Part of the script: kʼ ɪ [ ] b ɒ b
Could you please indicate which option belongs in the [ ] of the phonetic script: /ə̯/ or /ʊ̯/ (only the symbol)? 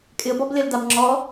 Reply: ə̯